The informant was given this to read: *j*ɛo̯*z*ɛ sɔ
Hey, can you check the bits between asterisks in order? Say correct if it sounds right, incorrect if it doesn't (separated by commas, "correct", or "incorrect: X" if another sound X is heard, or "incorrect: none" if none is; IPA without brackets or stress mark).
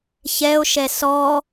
incorrect: ç, incorrect: ʃ